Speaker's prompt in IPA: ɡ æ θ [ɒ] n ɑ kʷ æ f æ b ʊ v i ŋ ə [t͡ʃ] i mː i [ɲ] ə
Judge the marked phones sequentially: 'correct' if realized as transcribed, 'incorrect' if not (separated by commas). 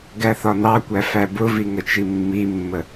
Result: correct, correct, incorrect